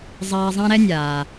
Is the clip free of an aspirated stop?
yes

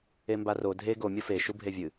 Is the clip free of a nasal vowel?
yes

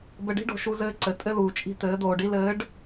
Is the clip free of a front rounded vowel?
yes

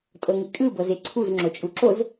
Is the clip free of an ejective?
no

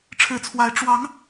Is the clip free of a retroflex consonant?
no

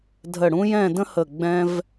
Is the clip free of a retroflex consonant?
no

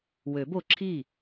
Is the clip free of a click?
no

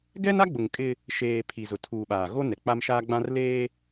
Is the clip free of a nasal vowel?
no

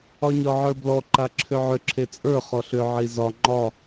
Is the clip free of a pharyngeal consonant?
no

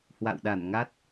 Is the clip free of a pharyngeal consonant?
yes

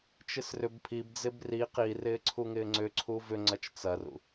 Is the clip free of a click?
no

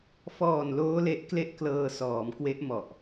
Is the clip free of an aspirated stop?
yes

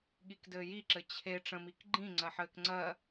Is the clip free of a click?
no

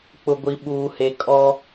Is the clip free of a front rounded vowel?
yes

